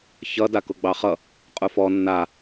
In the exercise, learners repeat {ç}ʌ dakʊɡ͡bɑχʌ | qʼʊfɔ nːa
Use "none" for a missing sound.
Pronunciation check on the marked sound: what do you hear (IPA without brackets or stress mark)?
ç